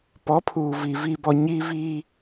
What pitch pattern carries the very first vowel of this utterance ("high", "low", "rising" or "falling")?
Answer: rising